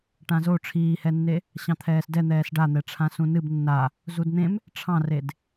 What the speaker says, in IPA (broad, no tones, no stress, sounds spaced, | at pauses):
ʈ ã z o ʈ͡ʂʰ iː h ɛ nː e | ɕ ɑ̃ t̪ʰ ɛː s d ɛ n̪ ɛː s ɖ a n̪ ɛ ʈ͡ʂʰ ã s ũ n ɨ b nː a | z u d n̪ ẽ m | ʈ͡ʂʰ ɑ̃ r e d